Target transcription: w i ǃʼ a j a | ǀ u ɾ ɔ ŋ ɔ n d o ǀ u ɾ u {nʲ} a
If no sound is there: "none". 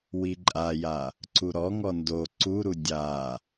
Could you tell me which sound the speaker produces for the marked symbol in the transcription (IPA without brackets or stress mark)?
dʲ